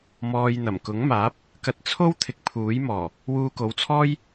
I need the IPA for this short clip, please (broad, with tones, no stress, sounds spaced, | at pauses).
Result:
m ɔː˧ j n̪ ɐ˨˩ m k ʊ˨˥ ŋ m aː˨˥ p̚ | k ɐ˧ t̚ t͡sʰ o˥ w t̪ʰ ɪ˧ k̚ pʰ uː˨˥ j m ɔː˨˩ | w uː˧ k o˨˧ w t͡sʰ ɔː˥ j